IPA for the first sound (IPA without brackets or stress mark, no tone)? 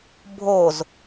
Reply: bʱ